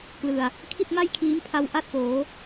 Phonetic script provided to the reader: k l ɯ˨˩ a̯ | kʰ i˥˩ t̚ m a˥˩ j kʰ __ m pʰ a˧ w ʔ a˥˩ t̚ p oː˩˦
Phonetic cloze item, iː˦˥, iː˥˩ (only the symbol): iː˦˥